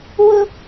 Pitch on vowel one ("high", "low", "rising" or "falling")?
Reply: high